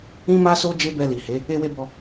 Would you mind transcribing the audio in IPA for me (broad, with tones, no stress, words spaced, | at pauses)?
ĩ˦ma˦so˦ d͡ʒe˦bɛ˧li˨he˨˦ | e˦we˦bɔ˧